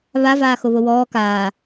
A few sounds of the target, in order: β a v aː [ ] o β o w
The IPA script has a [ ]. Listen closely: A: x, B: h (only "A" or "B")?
A